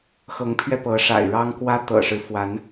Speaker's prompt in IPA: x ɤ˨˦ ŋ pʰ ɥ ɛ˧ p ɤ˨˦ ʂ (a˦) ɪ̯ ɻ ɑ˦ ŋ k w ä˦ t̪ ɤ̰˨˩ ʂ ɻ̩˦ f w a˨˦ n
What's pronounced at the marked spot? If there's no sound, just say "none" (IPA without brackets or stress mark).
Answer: a̰˨˩